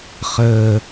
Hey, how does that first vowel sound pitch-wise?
low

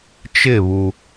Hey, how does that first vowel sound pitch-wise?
falling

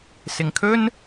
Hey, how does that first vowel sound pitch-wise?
low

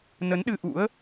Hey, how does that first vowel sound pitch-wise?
rising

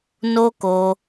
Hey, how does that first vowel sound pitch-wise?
high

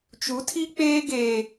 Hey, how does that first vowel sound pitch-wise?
rising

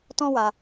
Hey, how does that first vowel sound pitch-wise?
high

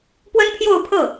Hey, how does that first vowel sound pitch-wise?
high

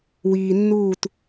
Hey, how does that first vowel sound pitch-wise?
low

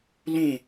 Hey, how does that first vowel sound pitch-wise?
falling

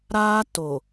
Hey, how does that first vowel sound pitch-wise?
high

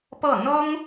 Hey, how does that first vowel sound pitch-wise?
falling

